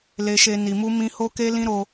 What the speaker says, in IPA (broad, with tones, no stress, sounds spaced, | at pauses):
l e˧ ʃ e˧ n i˨ m u˧ m ĩ˧ h o˦ k e˦ l ĩ˦ ɾ o˦